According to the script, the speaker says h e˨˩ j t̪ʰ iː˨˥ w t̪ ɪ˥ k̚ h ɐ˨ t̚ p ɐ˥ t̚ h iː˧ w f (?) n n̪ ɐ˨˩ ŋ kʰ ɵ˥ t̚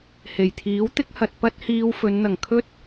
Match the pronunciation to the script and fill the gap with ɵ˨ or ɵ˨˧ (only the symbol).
ɵ˨˧